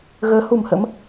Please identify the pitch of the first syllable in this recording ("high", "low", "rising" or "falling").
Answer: rising